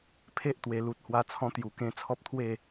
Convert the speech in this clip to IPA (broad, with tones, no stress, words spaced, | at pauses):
pʰe˦ʔt̪we˨˩ lu˨t̚hwa˧ t͡sʰɔ̃˦t̪ju˨˩kẽ˦ t͡sʰɔ˦p̚t̪ʰwe˥˧